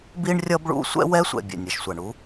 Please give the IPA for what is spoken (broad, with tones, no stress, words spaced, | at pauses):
bi˥ɳrʲʌ˥bɭṵ˥ sʷɛ̰˥wɛ˥sʷɛ̰˩ bʲɛ̰˩nʲʌ˩ʃsʷa˩ɳu˥